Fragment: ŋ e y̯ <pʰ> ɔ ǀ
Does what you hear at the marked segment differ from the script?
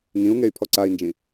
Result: no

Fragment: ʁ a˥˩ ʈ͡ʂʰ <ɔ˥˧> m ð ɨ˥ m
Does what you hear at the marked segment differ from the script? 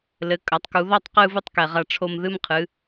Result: yes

